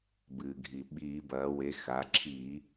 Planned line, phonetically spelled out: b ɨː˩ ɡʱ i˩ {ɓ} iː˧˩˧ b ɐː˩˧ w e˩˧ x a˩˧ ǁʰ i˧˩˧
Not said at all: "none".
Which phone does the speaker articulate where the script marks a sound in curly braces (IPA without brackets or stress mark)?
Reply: ɓ